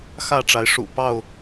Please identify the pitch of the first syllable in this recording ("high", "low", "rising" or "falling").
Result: falling